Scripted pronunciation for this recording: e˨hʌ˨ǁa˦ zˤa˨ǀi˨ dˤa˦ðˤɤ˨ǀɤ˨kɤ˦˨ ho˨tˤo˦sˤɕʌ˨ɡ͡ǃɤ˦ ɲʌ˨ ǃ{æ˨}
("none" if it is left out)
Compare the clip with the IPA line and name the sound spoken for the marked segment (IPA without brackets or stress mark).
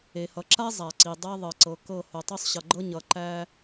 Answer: æ˦